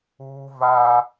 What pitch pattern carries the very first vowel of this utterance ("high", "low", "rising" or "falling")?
high